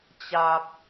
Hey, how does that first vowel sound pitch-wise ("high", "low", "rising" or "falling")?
low